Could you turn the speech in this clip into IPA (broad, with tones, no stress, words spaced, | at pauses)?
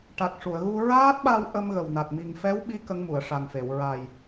ʈa˨˩k̚ʂu˨˩˨ə̯ɣu˧ ɹaː˦˥t̚ɓa˧w ʔə˧mɣə˨˩wna˨˩t̚ mi˨˩ŋfɛ˧˥w ɓi˧˥ kə˧˥ŋmu˨˩˨ə̯ʂa˨˩nfe˨˩˨w ɹa˨˩j